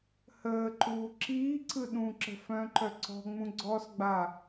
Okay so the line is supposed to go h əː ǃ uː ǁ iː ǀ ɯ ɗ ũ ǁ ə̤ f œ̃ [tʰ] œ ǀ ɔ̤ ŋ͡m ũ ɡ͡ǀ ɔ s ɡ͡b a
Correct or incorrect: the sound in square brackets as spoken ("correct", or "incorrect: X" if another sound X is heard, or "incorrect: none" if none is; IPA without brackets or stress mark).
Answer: incorrect: ǃ